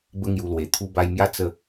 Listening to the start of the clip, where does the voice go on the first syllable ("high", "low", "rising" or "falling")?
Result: high